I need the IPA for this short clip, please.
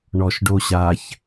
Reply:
ɳ ɔ ʃ ɖ o ɕ a ç

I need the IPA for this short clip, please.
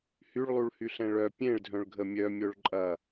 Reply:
h y ɭ lˠ u ɭ h y ɬ ɛ̃ ɭ œ pʲ ẽ ɭ dʱ œ̃ ɭ ɡʱ ə mʲ œ mʲ o ɭ ǃʼ ɐ

